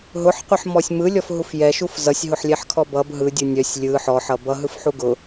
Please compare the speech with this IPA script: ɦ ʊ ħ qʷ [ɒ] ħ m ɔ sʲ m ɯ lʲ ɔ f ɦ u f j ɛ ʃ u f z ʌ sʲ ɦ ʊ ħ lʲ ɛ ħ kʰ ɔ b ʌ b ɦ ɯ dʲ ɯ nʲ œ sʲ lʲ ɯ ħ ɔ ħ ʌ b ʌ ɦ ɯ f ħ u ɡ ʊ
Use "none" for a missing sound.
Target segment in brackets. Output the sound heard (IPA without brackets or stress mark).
ʌ